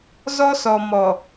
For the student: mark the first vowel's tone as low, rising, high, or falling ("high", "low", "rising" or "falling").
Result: high